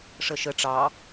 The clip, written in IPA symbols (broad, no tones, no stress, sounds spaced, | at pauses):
ʂ ə ʃ ə ʈ͡ʂ ɑ